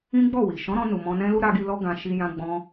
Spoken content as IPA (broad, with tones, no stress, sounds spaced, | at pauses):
ĩ˦ ɡ͡b ɔ˦˨ w i˨ ʃ ɔ̃˨˦ ɾ ɔ̃˧ n u˨ m ɔ̃˧ n ɛ̃˦ l u˦ ɾ a˧ ɡ i˧ l ɔ˧ ɡ ã˨ ʃ i˨ j ã˧ ɡ͡b ɔ̃˧